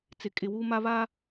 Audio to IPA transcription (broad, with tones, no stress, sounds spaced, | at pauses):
t͡s ɪ˨ kʼ ɪ˨ w uː˦ m a˦ β aː˦